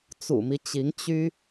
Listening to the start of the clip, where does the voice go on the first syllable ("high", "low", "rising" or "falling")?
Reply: low